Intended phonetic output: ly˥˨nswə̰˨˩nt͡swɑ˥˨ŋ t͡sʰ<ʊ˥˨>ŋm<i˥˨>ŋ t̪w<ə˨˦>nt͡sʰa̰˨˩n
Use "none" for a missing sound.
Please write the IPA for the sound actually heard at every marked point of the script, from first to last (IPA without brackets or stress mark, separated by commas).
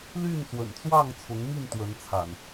ʊ˨˦, i˥˨, ə˨˦